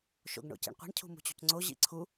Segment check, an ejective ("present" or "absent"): absent